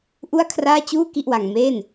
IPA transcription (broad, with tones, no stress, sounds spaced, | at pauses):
ʔ u˥˩ a̯ kʰ r aː˥˩ t͡ɕ uː˥˩ k i˥˩ ʔ w a˧ ŋ m eː˥˩ n